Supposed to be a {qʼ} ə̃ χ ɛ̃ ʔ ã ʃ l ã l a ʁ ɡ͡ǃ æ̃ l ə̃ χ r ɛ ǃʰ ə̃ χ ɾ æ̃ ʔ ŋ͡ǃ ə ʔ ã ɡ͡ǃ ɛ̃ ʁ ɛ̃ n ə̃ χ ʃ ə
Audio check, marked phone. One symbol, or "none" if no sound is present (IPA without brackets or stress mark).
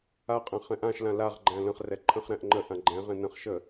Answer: qʼ